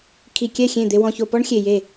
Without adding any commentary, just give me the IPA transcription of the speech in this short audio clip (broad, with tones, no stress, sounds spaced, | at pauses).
kʰ i˨ kʲ ɛ˦˨ xʲ ẽ˦˨ d̪ e˨ w ɔ̃˨ ç o˨ p ɔ˦ ɳ xʲ e˨ j e˦˨